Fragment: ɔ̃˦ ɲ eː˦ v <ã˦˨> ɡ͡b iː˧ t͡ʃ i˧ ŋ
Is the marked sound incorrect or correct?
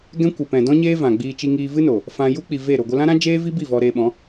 incorrect